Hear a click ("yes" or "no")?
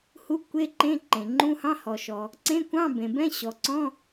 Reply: yes